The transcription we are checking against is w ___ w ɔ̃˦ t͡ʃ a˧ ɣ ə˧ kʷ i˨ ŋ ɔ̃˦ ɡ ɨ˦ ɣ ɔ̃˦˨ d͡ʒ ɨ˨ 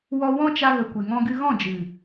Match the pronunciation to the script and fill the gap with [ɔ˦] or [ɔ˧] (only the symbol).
ɔ˧